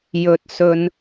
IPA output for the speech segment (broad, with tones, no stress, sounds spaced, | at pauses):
j ɵ˧ t̚ s ɵ˧ n